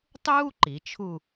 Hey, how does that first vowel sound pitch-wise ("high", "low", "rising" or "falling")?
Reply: high